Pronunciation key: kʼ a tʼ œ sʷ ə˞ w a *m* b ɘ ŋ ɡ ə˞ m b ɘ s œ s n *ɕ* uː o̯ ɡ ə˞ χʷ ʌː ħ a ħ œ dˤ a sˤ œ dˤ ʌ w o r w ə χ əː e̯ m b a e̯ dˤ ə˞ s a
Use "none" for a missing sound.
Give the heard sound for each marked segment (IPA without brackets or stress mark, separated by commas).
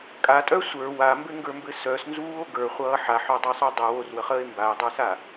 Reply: m, z